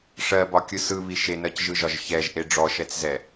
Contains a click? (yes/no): no